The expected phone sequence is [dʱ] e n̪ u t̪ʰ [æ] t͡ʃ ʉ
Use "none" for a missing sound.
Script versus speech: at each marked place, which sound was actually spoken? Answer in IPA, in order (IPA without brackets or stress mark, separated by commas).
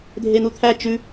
dʱ, æ